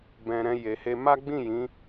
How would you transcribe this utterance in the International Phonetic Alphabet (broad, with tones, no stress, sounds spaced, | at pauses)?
b ɛ̃˧ ɾ ɛ̃˧ j e˨ h e˧ m a˦ ɡ͡b ĩ˦˨ j ĩ˨˦